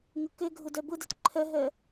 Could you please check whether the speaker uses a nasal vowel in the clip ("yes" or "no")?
no